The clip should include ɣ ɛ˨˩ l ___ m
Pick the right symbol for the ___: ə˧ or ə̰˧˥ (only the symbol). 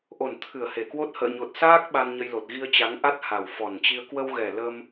ə˧